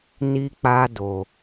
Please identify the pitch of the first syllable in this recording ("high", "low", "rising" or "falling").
high